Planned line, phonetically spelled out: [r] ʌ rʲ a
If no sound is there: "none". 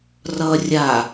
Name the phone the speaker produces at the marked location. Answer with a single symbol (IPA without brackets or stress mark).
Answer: r